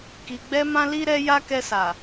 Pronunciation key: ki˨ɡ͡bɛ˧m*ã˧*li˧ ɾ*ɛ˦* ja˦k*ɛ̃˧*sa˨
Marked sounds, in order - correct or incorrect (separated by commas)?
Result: correct, correct, incorrect